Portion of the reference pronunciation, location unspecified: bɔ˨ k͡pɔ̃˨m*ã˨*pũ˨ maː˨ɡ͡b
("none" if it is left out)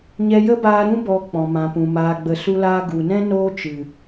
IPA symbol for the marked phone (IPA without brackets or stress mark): ã˨